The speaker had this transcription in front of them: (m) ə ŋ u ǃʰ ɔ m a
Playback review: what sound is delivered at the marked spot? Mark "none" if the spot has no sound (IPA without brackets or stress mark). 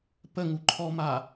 p